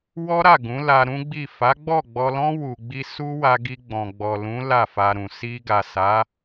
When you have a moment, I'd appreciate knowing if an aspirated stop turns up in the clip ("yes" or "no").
no